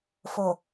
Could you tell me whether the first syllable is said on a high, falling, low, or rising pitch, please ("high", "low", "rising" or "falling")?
low